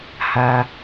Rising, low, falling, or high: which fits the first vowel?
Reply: low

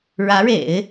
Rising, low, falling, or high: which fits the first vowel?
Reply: rising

